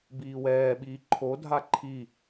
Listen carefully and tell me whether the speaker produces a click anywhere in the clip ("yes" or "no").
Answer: yes